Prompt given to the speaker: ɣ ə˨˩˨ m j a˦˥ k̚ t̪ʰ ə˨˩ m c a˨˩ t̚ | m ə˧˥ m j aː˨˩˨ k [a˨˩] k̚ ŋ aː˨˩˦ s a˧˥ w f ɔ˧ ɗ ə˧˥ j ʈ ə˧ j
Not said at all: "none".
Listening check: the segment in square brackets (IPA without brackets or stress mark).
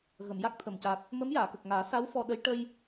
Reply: ə˨˩